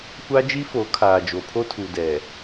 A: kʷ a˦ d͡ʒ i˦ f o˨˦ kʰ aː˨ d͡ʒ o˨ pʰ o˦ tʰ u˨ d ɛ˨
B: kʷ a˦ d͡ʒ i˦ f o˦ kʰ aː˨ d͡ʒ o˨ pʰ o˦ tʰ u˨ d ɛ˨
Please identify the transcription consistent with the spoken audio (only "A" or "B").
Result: A